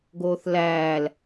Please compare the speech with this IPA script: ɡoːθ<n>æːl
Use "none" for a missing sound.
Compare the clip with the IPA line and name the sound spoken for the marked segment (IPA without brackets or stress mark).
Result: l